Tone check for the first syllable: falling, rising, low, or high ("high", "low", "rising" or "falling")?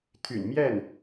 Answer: low